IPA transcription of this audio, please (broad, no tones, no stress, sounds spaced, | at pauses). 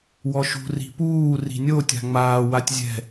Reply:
w ɔ ʃ ṳ r i̤ p uː r i̤ nʲ o tʲ a̤ ŋ͡m aː w a tʲ zʲ ɛ̤